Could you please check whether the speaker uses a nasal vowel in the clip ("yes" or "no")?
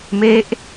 no